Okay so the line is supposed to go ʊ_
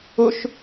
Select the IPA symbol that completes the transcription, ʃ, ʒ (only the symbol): ʃ